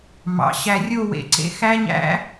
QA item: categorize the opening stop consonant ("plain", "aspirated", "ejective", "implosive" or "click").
click